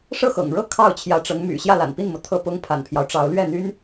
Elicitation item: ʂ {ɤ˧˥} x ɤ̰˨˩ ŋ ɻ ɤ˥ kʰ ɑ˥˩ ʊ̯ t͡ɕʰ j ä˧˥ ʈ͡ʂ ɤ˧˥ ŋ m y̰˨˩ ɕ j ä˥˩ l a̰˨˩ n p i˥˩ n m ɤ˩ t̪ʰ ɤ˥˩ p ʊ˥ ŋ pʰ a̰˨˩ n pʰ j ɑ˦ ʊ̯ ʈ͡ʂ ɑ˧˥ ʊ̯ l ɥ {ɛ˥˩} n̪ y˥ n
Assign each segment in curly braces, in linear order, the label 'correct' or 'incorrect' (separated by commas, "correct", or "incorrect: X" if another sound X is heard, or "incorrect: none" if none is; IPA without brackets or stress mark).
incorrect: ɤ˥˩, correct